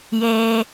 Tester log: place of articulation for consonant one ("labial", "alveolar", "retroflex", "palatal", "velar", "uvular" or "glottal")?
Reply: palatal